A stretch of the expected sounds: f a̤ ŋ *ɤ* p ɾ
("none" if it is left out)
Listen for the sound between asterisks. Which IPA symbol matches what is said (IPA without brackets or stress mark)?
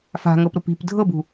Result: ɤ